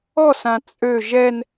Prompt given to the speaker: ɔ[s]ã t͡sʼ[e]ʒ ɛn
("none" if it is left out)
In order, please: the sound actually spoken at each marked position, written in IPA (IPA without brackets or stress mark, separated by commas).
s, ø